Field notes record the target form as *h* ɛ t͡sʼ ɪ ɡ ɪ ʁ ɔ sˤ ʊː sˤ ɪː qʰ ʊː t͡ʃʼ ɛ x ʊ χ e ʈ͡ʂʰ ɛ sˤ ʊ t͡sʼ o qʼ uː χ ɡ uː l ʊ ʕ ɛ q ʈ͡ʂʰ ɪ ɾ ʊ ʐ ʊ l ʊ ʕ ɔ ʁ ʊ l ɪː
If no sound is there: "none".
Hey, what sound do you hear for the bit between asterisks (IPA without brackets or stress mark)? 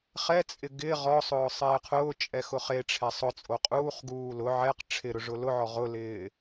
χ